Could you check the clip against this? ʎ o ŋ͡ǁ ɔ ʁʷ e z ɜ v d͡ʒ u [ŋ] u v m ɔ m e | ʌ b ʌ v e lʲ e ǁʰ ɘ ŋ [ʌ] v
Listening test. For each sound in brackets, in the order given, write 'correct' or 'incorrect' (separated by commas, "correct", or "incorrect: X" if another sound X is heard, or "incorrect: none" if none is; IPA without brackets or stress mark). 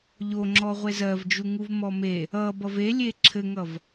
correct, correct